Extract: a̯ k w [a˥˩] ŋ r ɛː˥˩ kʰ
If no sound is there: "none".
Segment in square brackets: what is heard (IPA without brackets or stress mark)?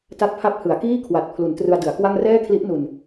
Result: a˥˩